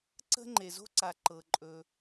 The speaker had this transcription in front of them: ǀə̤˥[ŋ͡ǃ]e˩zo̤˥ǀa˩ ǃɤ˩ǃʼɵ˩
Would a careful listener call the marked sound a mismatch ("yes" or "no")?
no